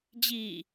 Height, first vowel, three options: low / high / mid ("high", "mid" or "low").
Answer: high